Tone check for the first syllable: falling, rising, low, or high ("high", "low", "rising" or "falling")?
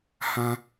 high